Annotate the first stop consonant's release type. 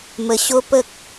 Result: plain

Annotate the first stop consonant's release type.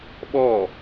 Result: implosive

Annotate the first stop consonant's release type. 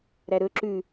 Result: click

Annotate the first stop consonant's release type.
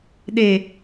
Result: implosive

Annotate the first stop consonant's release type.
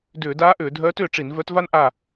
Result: plain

